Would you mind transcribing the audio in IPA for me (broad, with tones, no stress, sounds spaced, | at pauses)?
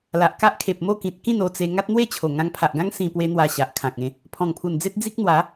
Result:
l a˨ ʔ k a˦ ʔ kʰ e˨ p̚ m o˥˧ k ĩ˨ t̚ k ĩ˥˧ n o˧ t͡s e˧ ŋ a˦ t̚ n̪ w e˥˧ t͡ɕʰ o˨˩ ŋ ã˧ ŋ pʰ a˨ ʔ ɡ ã˦ ŋ s ĩ˧ p w e˦ n̪ w a˧ ɕ a˨ ʔ kʰ ã˨ k̚ ẽ˧ | pʰ ɔ̃˨˩ ŋ pʰ u˨˩ n d͡z e˦ t̚ d͡z i˦ k̚ n̪ w a˨˦